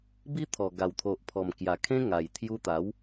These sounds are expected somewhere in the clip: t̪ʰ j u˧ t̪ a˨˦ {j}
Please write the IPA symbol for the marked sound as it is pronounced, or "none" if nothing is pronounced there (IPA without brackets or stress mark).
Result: w